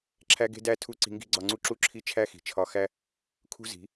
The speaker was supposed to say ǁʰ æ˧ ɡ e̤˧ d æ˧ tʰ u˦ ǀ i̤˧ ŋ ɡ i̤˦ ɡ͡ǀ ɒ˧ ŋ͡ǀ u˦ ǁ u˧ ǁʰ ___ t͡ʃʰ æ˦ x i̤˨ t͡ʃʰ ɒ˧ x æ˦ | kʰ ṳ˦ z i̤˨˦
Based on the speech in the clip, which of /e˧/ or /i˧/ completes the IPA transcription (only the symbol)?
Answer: i˧